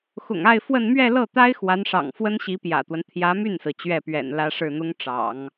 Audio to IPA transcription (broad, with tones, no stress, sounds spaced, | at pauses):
x ʊ̰˨˩ ŋ a˥˧ ɪ̯ f w ə˥˧ n m ɥ ɛ˥˧ l ɤ˥˩ t̪ a˥ ɪ̯ x w a˧˥ n ʂ ɑ̰˨˩ ŋ f w ə˥ n ɕ i˧˥ p j ä̰˨˩ t̪ w ə˦ n t̪ʰ j ä˧˥ m y˥˩ n s ɹ̩˩ t͡ɕ ɥ ɛ˥˩ p ɥ ɛ̰˨˩ n l ä˥ ʂ ɻ̩˥˩ n̪ ʊ˥ ŋ ʈ͡ʂ ɑ̰˨˩˦ ŋ